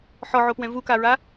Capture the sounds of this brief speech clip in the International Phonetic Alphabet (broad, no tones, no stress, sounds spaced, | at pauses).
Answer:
ħ ɔ ʕ o p w ɛ̃ v u k a ɹ a